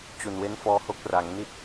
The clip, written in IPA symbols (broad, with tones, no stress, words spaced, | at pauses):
t͡ɕu˨˩nwe˦˥nfɔː˧ho˦˥k̚ ra˩˦ŋni˥˩t̚